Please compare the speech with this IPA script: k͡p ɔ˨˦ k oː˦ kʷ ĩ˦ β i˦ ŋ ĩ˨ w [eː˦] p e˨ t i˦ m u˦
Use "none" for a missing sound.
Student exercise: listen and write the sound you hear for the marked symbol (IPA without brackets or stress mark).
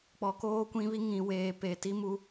eː˨